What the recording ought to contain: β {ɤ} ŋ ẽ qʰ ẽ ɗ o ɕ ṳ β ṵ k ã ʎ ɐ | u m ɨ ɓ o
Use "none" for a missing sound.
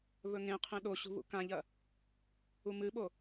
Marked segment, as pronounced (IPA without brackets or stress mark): ɵ